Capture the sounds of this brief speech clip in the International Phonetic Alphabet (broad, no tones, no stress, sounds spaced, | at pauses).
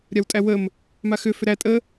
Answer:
ɾʲ a w tʼ æ w ə m | m a x ʏ f ʏ ɾ æ tʼ ə